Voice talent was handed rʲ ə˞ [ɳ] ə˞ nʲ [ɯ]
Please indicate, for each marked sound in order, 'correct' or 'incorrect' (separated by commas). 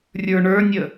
correct, incorrect